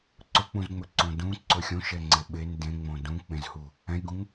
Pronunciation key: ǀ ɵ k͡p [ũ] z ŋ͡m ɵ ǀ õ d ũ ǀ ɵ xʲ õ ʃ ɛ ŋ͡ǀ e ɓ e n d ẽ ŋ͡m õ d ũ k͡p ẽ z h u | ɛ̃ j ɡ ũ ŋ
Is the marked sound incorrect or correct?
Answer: correct